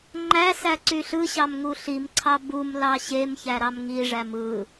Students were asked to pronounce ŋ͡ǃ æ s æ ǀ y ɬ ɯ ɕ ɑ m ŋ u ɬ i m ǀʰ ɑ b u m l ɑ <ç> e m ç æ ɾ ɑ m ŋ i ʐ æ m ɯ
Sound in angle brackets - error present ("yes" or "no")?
yes